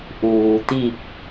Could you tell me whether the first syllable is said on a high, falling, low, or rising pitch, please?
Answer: low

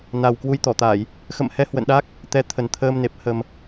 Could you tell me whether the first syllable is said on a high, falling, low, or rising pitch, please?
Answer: low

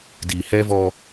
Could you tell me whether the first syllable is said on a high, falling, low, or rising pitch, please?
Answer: low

